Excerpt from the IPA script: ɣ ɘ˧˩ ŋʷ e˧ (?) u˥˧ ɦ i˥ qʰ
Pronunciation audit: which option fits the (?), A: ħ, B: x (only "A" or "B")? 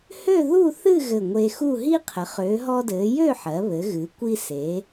B